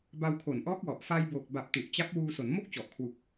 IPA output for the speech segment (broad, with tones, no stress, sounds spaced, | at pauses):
b a˧ w kʰ o˨˩ n ʔ ɔː˦˥ k̚ w ɔ˨˩ ʔ f a˧ j b oː˨˩ k̚ b a˨˩ p̚ t u˨˩ ʔ t͡ɕ a˦˥ p̚ w uː˧ s o˩˦ n m o˥˩ k̚ t͡ɕ ɔ˨˩ ʔ kʰ w u˨˩ k̚